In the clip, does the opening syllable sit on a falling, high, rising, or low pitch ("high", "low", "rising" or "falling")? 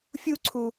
high